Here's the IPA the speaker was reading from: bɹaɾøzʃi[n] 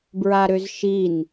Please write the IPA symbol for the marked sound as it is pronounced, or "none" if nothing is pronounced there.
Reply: n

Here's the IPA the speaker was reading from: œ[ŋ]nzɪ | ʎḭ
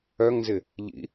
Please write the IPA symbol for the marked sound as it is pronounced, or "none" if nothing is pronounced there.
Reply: ŋ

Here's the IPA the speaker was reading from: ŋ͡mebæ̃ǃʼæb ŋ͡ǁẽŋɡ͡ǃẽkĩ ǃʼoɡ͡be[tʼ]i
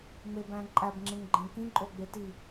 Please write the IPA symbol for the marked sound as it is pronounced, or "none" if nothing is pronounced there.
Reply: t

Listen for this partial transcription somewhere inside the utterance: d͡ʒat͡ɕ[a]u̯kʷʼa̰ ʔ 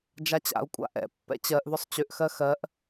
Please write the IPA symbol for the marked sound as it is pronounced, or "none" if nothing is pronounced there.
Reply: a̰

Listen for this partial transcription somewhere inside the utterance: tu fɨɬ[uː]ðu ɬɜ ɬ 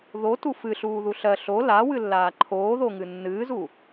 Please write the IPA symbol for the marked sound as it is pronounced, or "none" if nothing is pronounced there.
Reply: uː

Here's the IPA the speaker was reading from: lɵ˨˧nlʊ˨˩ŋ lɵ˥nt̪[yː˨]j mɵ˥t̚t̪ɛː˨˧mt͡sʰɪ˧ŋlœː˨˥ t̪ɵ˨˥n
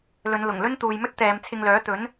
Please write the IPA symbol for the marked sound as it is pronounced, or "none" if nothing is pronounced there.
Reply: uː˨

